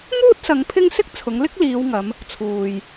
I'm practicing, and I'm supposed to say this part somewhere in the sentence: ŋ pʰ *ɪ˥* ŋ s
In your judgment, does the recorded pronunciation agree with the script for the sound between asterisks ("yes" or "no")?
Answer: yes